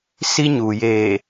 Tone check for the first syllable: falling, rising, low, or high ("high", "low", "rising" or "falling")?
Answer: high